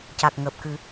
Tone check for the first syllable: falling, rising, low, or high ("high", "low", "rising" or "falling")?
low